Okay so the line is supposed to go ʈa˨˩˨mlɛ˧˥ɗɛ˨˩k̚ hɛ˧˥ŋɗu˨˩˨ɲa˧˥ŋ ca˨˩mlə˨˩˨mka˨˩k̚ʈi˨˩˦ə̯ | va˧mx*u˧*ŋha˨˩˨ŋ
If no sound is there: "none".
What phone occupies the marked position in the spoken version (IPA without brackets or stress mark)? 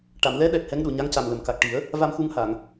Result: u˧